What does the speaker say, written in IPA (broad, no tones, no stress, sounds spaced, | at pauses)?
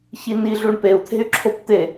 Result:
ç i n i ɮ u ɳ p e u̯ t̪ʰ e̤ y̯ ǁʰ o p t̪ e